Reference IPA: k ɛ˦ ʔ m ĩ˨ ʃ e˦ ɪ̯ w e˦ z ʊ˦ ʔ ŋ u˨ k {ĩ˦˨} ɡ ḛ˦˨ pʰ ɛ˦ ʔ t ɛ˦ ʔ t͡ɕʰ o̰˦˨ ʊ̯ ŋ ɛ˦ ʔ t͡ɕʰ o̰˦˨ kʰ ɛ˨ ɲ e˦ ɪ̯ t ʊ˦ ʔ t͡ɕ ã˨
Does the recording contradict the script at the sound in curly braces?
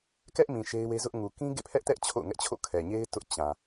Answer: yes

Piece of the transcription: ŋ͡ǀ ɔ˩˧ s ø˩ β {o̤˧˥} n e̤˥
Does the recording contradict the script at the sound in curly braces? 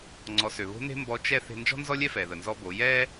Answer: no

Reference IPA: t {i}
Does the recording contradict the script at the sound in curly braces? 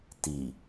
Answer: no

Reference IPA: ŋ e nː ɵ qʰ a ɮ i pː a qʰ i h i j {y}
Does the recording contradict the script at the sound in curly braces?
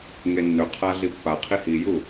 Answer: yes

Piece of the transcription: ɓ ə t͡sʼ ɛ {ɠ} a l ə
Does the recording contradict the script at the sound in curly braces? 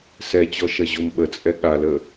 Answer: no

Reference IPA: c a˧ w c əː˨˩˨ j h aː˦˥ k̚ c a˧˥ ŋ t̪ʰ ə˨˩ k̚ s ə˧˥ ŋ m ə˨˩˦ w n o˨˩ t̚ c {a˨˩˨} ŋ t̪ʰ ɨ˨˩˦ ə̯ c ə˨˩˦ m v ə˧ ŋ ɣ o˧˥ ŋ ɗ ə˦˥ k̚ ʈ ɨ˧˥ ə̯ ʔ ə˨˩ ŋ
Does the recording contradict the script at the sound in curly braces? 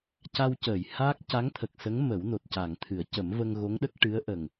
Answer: no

